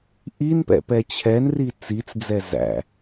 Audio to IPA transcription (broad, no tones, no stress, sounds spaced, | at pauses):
ʔ i n p ɛ̰ p ɛ t͡ɕʰ ɛ n r i t͡s i t͡s d͡z ɛ z æ̰